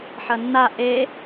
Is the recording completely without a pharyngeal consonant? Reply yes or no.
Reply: no